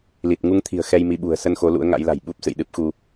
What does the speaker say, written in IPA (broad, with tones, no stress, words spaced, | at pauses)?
li˨˩t̚ ŋu˧ŋt̪ʰi̤˨˩ə̯ xɛ˧jmi˨˦ɓṳ˨˩ə̯ sə˧nxo˨˦ lṵ˧˥ə̯ŋa̰˧˥jla̤˨˩j ɓu˦˥p̚sɨ̰˧˨jɗɨ˦˥p̚xu˧